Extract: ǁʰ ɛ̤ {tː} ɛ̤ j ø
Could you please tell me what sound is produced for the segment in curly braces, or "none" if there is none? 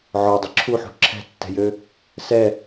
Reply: tː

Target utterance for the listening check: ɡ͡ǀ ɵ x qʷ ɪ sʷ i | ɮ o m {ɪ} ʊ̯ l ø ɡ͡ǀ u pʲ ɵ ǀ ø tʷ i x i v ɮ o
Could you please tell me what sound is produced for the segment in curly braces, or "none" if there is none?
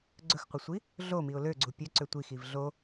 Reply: i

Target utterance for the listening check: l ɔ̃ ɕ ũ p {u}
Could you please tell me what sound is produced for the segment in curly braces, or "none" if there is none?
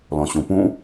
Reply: ũ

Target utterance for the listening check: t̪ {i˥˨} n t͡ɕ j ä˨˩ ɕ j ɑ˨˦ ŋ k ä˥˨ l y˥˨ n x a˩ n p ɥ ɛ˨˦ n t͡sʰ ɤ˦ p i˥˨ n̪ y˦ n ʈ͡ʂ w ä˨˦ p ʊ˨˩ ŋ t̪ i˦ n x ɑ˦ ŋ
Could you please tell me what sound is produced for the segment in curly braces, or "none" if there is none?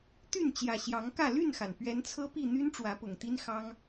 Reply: y˥˨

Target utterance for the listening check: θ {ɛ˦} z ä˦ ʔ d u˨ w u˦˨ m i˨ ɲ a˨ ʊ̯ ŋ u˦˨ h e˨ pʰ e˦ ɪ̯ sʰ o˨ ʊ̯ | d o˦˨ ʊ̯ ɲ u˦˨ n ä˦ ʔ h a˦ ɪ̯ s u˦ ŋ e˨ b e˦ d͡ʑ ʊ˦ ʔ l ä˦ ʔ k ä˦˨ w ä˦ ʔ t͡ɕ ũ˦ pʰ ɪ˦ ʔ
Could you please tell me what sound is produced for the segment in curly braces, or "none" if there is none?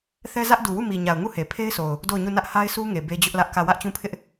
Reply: ɛ˦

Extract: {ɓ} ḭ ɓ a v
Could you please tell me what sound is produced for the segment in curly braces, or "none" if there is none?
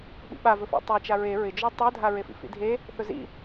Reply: ɓ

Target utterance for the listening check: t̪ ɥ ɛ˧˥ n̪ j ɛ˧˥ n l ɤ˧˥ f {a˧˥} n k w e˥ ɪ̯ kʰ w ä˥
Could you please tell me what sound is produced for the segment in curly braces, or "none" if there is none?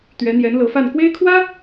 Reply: a˥˩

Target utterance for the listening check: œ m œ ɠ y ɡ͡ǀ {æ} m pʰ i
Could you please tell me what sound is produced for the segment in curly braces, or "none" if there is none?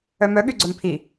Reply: œ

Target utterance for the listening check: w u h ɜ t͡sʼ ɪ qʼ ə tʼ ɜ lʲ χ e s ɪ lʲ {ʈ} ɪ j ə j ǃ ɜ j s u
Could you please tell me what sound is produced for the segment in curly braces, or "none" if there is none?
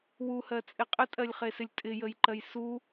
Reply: tʼ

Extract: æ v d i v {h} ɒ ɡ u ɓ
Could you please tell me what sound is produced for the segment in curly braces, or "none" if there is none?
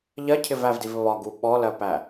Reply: β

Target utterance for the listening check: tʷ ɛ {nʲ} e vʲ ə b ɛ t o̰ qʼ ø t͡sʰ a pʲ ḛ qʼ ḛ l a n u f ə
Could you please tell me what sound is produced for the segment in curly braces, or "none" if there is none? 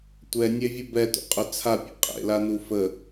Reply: nʲ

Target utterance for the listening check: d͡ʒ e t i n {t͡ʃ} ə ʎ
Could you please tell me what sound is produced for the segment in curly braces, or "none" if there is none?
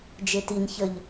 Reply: ç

